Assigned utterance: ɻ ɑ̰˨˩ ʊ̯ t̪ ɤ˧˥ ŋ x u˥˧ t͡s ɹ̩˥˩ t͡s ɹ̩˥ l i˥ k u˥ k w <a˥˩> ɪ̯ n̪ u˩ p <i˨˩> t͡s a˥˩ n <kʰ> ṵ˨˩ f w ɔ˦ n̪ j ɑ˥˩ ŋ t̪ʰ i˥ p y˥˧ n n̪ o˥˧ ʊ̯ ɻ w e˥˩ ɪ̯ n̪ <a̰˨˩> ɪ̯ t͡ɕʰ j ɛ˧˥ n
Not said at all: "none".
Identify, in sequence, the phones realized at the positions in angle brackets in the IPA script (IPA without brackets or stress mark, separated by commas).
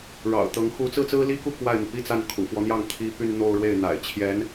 a˥˩, i˥, kʰ, a̰˨˩